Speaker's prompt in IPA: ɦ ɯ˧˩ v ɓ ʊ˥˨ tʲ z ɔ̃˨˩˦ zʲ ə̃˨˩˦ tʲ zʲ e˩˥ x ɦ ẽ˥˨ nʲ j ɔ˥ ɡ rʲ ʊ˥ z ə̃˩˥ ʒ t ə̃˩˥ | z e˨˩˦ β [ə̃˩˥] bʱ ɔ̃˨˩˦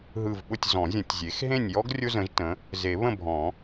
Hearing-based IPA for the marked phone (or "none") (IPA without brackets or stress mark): ə̃˥˨